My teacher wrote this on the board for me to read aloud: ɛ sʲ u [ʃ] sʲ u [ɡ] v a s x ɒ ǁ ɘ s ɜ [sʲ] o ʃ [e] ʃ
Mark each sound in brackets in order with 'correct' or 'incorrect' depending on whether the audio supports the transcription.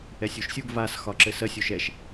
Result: correct, correct, correct, incorrect: ɛ

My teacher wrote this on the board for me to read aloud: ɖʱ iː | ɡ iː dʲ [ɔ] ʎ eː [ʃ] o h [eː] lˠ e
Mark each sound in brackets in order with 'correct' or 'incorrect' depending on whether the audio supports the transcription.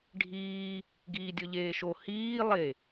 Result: correct, correct, incorrect: iː

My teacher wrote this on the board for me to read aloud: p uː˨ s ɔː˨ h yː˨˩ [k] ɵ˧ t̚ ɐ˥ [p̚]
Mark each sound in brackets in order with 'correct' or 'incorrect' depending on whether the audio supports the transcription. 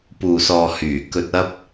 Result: correct, correct

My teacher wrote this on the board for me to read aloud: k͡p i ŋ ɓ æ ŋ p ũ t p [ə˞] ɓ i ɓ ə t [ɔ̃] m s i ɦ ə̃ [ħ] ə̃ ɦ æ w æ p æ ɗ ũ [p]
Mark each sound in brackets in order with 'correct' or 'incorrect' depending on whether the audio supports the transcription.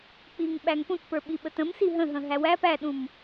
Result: correct, incorrect: ə̃, incorrect: ɦ, incorrect: m

